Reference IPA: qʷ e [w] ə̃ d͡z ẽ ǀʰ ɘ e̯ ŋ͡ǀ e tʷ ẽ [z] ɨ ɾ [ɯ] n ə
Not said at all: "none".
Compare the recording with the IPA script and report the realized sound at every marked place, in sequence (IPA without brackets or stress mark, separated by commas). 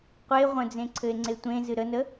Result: ʁʷ, z, ə